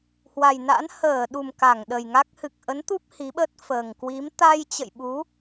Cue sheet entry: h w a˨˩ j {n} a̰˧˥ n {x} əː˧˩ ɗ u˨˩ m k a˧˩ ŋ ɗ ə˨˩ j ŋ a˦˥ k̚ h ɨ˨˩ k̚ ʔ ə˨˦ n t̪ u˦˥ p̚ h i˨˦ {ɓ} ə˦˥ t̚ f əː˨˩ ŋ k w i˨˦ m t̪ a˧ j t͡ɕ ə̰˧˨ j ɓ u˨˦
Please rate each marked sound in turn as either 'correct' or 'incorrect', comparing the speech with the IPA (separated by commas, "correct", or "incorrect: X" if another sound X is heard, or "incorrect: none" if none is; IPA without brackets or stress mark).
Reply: correct, incorrect: h, correct